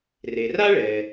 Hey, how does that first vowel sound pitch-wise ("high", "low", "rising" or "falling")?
low